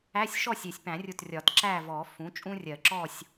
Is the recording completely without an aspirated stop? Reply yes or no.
yes